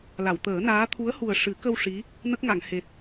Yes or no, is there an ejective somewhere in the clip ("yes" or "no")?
no